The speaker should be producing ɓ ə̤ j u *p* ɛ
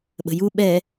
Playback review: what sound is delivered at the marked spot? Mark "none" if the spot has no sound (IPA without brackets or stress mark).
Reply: ɓ